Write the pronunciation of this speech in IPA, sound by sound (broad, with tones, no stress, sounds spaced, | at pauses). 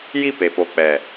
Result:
j i˦˨ p e˨ p o˨ k͡p ɛ˨